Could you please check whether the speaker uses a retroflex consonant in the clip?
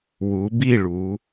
yes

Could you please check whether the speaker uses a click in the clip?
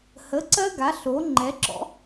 yes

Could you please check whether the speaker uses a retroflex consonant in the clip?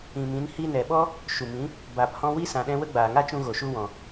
no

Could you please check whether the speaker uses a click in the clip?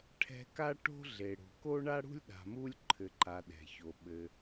yes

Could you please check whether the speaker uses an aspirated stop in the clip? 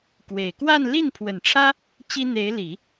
yes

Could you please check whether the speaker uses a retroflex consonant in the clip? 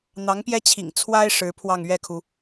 yes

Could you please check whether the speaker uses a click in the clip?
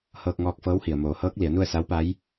no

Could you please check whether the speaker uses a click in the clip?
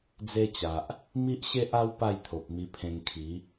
no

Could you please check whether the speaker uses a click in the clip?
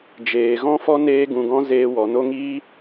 no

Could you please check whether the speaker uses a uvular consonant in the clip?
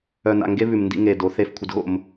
no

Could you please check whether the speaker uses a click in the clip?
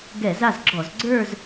yes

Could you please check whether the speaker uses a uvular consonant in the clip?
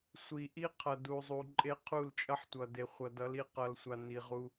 yes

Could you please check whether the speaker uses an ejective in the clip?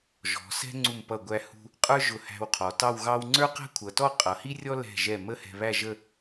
yes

